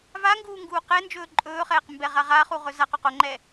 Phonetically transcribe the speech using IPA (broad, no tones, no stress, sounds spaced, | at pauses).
v a ŋ ɡ uː ŋ ɡ uː q ɛ n d͡ʒ ɵː ǃʼ ɵː χ ɛː q m b ɛ ʁ a ʁ a χ u ʁ ɵ z a q o q o ŋ͡ǃ ɛ